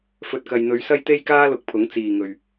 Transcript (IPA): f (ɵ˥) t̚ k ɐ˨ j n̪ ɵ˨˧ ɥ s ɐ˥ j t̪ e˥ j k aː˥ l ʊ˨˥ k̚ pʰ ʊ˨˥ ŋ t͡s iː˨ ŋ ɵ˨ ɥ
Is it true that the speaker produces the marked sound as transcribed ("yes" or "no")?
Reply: no